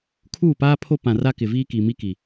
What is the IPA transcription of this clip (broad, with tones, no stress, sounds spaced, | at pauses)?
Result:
kʰ uː˦˨ p aː˦ pʰ o˦ p ã˨ r a˦ k ɪ˨ v iː˦ k i˨ m i˦ k i˨